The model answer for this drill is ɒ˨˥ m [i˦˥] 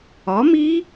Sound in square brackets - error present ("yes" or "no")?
no